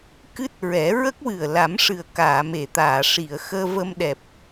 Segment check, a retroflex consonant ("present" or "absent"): present